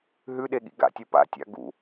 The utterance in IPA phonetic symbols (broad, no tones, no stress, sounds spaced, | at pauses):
ɦ ʉ ɗ e ɠ ḭ ɡ a̰ tʲ u p a̰ tʲ a̰ ɡ ṵ